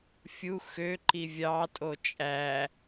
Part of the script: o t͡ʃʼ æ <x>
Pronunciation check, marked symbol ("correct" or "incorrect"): incorrect